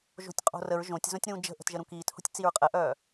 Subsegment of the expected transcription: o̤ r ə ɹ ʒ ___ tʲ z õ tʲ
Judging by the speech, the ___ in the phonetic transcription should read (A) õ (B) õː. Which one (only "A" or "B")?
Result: A